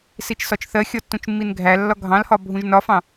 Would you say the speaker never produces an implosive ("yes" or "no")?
yes